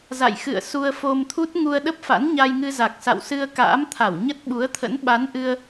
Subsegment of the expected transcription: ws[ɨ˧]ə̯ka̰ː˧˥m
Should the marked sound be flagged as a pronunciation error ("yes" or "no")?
no